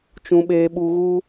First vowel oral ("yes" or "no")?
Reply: no